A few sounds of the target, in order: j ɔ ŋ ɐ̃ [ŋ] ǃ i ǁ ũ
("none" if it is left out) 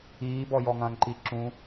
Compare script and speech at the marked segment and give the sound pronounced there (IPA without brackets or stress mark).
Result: ŋ